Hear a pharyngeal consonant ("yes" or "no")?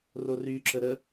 no